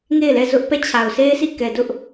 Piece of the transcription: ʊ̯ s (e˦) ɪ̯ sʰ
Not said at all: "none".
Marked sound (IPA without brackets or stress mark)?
e˦